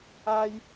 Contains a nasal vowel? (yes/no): no